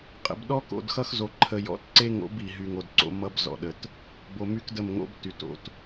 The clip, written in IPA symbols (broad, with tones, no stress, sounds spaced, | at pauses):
qʼ ə̰˨ b ɗ ɔ˦ k o̰˨ d x ʌ˦ x z o˨ ǃʰ ə˨ j ɔ̰˦ t ǀ e˦ ŋ o̰˨˦ b i˨ ɦ y˨ ŋ o˨ d ǀ o̰˨˦ m ʌ˦ b z ɔ̰˨ ɗ ə˨ t | b o˨ m y˦ k d ə˦˨ m ŋ o̰˦ b t y˨ t o̰˦˨ t